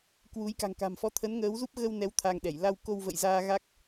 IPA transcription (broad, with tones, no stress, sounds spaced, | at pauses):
k w u˨˦ j k a̤˨˩ ŋ k a̤˨˩ m f ɔ˧ t̪ʰ ə˨˦ n ŋ əː˨˦ w z u˦˥ p̚ ɣ ə˧ w n ɛ˨˦ w t̪ʰ a˧ ŋ ɗ ɛ˧˩ j l a˧ w k o˧ w v ə̰˧˨ j z aː˧ ɣ a˦˥ k̚